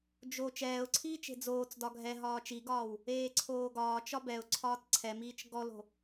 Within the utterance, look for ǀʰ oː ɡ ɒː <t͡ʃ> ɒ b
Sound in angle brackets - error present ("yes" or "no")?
no